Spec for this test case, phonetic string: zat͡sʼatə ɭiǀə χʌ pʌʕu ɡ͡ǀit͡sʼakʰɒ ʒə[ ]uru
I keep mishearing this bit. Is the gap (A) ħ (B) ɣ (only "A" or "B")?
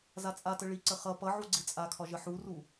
A